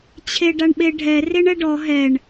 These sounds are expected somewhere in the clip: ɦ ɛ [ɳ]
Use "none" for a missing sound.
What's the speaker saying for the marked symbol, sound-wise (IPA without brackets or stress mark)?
ɳ